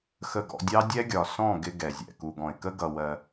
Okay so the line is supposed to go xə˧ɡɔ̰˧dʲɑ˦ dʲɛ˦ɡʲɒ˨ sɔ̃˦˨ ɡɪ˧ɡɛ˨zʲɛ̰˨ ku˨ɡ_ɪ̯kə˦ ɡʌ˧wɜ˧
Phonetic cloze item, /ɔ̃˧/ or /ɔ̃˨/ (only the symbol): ɔ̃˨